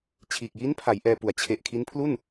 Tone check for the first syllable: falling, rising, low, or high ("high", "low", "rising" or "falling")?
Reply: low